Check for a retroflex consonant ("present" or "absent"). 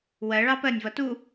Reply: present